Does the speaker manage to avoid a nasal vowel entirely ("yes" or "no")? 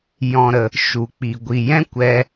no